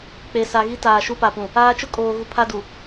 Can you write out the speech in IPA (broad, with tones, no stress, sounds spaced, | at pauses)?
k͡p e˨ s a˨ ɣ i˦ t aː˨ ʃ u˦ p a˨ p ũ˨ | aː˦ t͡ʃ ʊ˦ kʼ oː˨ ɣ u˨ pʰ a˦ d u˨